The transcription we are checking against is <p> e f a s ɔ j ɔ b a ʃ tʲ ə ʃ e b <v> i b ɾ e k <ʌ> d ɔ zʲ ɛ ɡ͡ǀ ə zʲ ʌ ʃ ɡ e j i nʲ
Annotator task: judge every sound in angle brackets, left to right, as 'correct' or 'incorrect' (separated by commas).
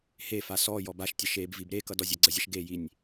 incorrect, correct, correct